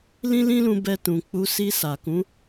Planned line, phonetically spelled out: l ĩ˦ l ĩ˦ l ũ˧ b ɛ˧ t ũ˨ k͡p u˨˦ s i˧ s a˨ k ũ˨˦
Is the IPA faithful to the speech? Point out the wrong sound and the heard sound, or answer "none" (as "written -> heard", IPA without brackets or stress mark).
none